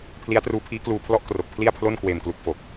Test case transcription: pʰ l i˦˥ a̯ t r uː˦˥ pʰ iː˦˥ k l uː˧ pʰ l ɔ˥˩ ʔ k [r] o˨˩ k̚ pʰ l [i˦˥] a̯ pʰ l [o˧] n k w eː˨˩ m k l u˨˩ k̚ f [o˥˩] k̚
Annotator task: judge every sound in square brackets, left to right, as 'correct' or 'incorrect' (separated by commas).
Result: correct, incorrect, incorrect, incorrect